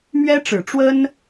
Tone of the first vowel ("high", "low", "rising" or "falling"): high